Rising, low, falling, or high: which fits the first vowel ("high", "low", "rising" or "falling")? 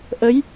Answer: rising